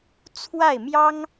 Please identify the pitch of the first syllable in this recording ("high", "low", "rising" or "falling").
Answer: falling